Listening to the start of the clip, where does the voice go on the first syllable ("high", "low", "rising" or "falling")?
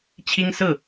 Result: high